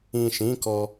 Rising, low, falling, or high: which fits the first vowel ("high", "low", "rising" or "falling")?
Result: low